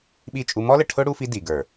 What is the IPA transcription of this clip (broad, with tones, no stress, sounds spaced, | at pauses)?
ɓ i˦˨ t͡ʃʼ u˦ m ɔ˦ l ə˨ ʈʰ ʊ˦ ɽ u˦ f i˦ d i˨ ɡ ə˞˨